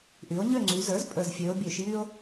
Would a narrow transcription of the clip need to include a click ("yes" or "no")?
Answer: yes